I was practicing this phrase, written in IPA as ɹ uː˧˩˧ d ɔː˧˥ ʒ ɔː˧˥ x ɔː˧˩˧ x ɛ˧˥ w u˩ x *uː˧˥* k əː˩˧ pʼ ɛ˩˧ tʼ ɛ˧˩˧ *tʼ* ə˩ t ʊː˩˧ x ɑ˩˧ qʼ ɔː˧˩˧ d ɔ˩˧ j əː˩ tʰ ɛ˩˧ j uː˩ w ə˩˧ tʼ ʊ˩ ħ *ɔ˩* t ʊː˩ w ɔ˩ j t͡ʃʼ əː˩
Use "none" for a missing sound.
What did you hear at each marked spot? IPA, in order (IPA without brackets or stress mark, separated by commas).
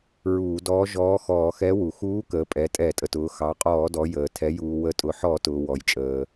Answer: uː˧˥, tʼ, ɔ˧˩˧